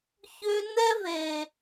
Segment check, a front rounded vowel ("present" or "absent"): present